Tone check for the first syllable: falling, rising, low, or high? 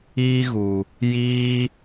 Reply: high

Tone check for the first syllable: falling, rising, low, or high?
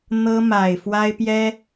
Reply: high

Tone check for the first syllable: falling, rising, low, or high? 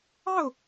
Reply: falling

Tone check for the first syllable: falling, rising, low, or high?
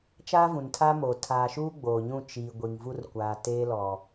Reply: high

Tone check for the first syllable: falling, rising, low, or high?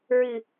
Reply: low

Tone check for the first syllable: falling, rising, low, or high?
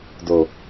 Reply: low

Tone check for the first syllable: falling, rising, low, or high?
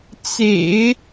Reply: low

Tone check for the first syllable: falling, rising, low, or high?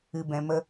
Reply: low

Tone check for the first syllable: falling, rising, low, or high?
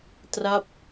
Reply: falling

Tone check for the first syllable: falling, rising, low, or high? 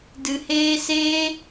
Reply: low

